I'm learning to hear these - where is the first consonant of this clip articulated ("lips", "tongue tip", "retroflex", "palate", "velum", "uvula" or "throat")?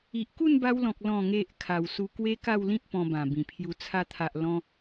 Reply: throat